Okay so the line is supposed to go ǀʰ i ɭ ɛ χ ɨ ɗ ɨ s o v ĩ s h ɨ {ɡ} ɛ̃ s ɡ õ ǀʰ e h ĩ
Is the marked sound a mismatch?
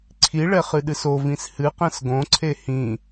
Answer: yes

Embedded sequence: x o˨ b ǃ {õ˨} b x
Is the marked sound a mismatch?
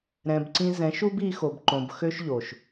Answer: no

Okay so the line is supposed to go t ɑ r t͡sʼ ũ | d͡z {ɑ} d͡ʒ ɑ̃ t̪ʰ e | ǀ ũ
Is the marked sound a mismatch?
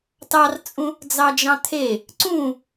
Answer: no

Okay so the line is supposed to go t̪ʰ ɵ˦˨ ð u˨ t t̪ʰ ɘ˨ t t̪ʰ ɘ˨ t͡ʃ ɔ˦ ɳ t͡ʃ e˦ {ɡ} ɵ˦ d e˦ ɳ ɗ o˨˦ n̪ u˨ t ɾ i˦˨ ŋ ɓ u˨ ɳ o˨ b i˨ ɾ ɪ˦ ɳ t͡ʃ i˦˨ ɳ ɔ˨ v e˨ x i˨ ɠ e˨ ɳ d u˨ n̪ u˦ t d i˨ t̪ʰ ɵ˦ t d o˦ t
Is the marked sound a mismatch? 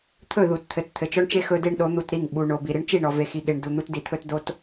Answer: yes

